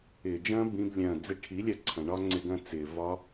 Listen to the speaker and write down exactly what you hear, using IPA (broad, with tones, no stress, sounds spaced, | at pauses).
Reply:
ɪː˨ d͡ʒ ɐ̃ː˦ b ĩ˧ b lʲ ɐ̃ː˨ d͡z ɪ˧ ʈʰ i˨˦ lʲ ɐ˧ ǀʰ ɐ̃˨ ɳ ɒ˦ ŋ͡ǀ ɪ˧ ɡ ɐ̃˧ t͡s ɪː˨ v ɒ˧